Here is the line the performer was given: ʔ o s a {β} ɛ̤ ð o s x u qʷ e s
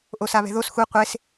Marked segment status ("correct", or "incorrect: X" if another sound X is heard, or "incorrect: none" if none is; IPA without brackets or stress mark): correct